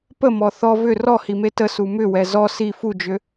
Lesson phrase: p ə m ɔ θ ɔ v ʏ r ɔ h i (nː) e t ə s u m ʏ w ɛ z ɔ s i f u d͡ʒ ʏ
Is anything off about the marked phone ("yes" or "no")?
yes